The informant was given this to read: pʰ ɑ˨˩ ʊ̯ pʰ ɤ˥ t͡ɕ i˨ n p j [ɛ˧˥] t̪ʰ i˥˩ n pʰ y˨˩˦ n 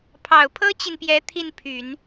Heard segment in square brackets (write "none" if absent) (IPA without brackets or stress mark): ɛ˧˥